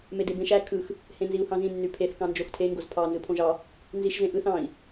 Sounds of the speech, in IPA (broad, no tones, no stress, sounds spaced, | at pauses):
m e d e b ẽ ʃ æ kʰ ɯ x | h ẽ n z i u̯ h ɑ̃ z ĩ nː y pʰ e θ k ɑ̃ n d͡ʒ o x tʰ e ŋ ɡ o z pʰ ɑ n z ɯ pʰ õ ʒ ɑ | n z i ʃ z ẽ ʔ ɯ θ ɑ̃ i̯